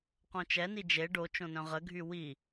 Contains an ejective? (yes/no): no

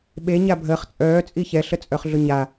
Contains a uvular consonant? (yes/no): yes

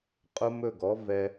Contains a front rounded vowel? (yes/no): no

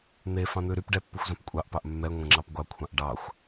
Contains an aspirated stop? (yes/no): yes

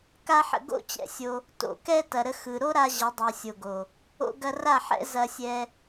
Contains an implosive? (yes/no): no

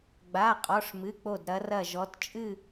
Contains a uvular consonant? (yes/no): yes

